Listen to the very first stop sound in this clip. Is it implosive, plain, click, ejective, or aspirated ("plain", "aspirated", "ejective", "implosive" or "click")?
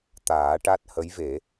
plain